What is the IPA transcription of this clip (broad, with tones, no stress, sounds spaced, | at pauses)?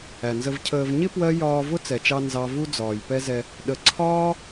æ˨ n z ə˧ v cʰ əː˧ v ɲ ɪ˦ p w ɜ˦ j ɒː˧ v ʊ˦ t͡s ɛ˨ t͡ʃ ɑ˧ n z ɑ˦ v u˧ d͡z ɒː˨ j p ɛ˦ z ɛ˧ | ɗ ə˧ ǀʰ ɒː˦